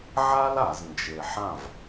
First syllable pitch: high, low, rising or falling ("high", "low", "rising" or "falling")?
high